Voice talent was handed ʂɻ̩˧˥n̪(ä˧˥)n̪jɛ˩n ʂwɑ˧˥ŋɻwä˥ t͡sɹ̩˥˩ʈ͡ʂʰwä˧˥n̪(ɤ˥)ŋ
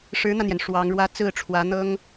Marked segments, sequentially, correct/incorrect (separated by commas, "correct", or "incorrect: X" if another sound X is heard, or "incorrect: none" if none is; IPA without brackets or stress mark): incorrect: ä˧, correct